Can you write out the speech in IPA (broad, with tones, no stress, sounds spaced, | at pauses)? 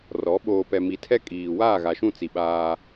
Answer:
r ɔ˨˦ ɓ oː˨ p ɛ˨ m i˨ tʰ ɛ˦ kʼ iː˨ w aː˦˨ ɣ a˨ ʃ ũ˦˨ t͡s i˨ ɓ aː˦